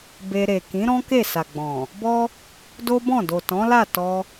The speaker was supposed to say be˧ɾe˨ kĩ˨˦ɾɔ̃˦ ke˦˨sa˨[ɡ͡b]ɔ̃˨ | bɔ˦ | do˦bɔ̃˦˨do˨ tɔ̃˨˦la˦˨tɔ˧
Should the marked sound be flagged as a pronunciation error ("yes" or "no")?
no